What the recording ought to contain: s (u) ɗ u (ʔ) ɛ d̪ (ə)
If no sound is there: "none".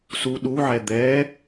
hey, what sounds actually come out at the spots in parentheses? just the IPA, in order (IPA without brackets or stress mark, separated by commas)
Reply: u, ʕ, ɛ